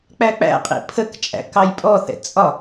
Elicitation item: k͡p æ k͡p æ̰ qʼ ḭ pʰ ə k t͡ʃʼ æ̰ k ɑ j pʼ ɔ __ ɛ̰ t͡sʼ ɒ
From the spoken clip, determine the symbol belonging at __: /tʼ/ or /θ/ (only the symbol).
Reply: θ